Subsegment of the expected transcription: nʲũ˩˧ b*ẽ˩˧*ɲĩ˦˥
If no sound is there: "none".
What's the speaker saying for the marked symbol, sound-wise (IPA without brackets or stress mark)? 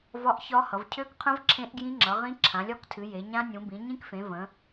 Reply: ĩ˩˧